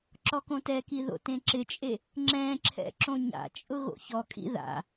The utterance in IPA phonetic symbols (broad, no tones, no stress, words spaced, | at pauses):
ǁɔkõtɛki ðo̰tẽǁɪt͡ʃʼe | ŋ͡ǁɛ̃ǁʰɛ̰ ǁõɲa̰t͡ʃʼʊ ɣo̰çɔkʼḭ ða̰